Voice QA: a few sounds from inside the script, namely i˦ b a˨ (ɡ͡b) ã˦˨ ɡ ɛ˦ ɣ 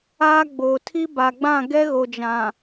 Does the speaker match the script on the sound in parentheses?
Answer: yes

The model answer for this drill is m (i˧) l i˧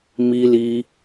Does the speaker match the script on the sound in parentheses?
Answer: yes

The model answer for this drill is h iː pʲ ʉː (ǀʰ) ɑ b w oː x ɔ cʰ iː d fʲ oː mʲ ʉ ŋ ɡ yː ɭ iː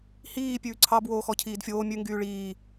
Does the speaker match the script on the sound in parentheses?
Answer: yes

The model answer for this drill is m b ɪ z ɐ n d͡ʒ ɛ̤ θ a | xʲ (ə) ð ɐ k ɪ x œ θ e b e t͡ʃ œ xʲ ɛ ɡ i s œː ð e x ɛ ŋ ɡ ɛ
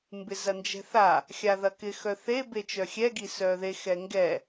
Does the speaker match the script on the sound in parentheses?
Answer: no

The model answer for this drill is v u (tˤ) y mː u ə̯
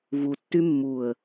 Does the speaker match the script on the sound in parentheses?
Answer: no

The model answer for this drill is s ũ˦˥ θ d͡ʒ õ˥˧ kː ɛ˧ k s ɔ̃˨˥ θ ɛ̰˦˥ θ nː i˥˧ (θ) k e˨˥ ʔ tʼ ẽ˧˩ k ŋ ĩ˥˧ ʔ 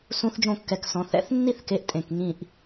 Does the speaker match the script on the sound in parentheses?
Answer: yes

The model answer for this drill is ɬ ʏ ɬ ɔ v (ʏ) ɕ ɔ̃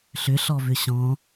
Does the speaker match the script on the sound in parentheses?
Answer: yes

